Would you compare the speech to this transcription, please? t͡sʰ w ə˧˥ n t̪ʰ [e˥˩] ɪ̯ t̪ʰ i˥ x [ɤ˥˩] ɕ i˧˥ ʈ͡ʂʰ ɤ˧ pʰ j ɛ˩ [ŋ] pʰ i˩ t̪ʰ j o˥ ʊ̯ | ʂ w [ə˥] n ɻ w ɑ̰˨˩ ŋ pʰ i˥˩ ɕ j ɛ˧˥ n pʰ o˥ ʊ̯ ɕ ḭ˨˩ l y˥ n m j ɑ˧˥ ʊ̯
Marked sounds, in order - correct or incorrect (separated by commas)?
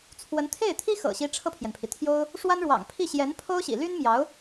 correct, incorrect, incorrect, incorrect